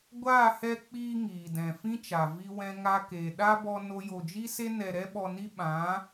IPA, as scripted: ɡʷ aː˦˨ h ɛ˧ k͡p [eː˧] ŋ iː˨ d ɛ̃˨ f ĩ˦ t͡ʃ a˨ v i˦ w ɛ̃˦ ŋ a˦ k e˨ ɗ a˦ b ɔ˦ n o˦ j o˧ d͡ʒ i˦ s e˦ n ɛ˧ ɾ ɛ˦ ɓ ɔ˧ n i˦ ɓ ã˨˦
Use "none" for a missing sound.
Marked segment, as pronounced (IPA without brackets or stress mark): iː˧